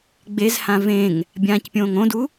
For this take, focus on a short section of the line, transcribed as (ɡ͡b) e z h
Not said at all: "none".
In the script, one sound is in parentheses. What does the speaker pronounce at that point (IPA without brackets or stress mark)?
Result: ɡ͡b